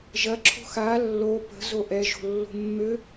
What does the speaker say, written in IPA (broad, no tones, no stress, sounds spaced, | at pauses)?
ʒ ɐ ǁʰ o̤ x a lː o p ə̤ z o ʔ ɛ ʒ o̤ lː o̤ mː ø